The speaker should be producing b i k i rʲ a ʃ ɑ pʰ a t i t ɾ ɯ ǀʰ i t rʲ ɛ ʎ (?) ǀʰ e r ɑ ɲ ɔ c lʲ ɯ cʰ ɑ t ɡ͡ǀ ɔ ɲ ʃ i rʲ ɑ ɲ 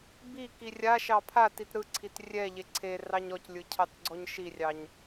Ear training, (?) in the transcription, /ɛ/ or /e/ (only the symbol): e